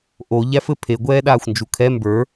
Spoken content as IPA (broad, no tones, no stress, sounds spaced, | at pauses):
ʔ o ʎ æ f ɘ pʰ e ɡʷ ɛː ɗ aː xʷ n d͡ʒ u kʰ ɛ m b ə˞